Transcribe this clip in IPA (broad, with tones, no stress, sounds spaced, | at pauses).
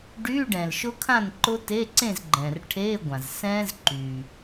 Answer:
ɖ yː˧˥˧ ɖ ɛ̃˩ l ʃ ʊ˦˥ kʰ ã˥˨ n ǃ ʊ˦˥ t e˧˥˧ ǀ ẽ˥˨ z ɡ͡ǃ ɛ̃ː˩ r ʈʰ eː˧˥˧ ɡʷ ã˩ z s ɛ̃ː˦˥ z ǃ yː˩